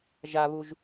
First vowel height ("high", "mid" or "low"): low